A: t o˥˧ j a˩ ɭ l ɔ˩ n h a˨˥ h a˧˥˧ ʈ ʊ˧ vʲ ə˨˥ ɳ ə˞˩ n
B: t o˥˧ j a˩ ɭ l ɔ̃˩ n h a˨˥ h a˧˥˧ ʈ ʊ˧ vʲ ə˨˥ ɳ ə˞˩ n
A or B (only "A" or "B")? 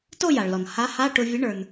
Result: A